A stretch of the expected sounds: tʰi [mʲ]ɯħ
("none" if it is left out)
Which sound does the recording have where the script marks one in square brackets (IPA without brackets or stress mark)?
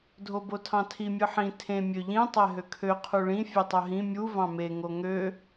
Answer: mʲ